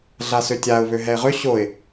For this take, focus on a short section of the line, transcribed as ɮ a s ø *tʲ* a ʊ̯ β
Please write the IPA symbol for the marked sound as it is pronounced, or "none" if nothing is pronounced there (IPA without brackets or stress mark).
tʲ